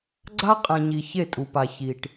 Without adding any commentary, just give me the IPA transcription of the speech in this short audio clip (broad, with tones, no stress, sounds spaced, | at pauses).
ɡ͡ǀ a˦ qʼ ɛ̃˨ ɲ i˨ ç e˦˨ tʼ u˨ p a˨ ç i˨ ʈ